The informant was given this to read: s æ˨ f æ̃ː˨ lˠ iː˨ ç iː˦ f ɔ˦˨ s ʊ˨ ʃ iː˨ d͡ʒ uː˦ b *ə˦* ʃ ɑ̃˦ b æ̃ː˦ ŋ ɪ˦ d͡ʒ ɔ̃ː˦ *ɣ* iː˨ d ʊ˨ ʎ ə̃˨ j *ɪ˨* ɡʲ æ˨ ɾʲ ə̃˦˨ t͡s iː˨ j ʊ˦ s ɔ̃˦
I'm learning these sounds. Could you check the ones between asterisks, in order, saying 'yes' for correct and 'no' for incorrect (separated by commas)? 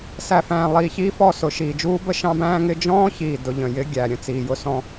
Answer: yes, no, no